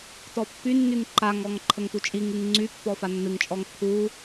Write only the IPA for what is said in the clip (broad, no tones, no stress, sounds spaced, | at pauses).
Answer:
t ɔ pː y nː y ŋ ǃ a ŋ ɔ ŋ ǃʰ ə ŋ t u t͡ʃʼ i ŋ ɨ ŋ ŋ͡ǀ y pː ɔ f a nː ɨ ŋ t͡ʃʼ ɔ ŋ t̪ʰ u